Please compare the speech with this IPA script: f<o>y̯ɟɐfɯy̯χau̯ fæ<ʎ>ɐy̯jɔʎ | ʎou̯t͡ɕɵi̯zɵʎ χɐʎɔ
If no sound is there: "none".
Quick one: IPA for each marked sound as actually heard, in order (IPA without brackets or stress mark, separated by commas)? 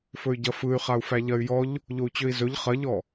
ɵ, ʎ